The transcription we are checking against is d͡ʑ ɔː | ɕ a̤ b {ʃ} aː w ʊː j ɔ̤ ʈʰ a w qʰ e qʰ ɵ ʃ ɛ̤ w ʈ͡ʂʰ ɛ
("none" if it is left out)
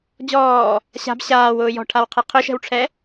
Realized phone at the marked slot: ɕ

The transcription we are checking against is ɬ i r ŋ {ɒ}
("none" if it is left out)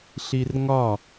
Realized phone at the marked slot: ɒ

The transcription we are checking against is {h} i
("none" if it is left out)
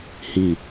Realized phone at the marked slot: h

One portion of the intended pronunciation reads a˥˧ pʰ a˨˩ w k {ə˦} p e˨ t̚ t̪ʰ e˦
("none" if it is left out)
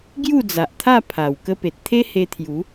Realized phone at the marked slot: ə˦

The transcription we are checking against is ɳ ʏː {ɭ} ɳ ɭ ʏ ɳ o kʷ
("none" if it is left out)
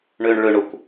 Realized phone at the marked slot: none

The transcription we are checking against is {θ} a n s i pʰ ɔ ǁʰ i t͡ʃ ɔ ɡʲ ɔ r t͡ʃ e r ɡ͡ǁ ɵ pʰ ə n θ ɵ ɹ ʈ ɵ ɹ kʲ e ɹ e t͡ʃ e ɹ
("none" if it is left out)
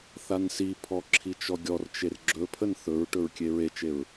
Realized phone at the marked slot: θ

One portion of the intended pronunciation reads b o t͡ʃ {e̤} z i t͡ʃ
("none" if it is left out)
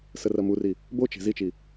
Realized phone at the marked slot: e̤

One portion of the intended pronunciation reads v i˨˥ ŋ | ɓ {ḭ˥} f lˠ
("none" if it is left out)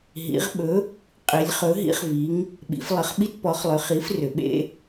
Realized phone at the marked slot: ḭ˩˧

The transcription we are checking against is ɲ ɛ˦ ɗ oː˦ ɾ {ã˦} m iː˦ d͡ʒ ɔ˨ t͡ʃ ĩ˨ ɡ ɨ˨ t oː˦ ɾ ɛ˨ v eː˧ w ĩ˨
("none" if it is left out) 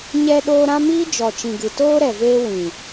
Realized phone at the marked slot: ã˦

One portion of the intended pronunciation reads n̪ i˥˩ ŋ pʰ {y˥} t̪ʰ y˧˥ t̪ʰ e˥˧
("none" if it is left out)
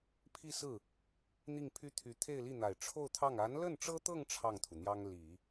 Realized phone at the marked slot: y˥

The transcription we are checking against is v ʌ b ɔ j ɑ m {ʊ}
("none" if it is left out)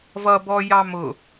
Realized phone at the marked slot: ʊ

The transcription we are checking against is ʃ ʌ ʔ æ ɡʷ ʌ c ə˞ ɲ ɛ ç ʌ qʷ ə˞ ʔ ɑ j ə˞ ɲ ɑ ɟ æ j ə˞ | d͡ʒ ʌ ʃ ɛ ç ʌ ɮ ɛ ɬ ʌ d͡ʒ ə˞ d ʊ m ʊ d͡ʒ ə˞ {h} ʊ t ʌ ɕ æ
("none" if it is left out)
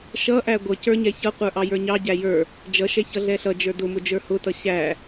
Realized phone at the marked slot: h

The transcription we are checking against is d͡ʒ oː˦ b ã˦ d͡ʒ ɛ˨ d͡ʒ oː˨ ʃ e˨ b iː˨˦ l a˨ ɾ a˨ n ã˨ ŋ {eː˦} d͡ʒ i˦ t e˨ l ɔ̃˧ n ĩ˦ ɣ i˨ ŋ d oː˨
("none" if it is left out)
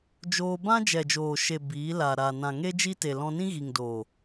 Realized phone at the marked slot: e˦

